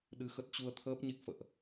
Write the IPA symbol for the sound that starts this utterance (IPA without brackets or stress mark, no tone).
ɗ